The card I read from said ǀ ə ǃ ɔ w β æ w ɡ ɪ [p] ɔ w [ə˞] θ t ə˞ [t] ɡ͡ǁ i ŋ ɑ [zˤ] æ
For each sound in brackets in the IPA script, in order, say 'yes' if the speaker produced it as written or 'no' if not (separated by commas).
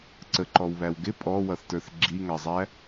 no, no, no, yes